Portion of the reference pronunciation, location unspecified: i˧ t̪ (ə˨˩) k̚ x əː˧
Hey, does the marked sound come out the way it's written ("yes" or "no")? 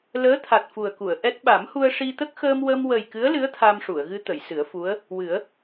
no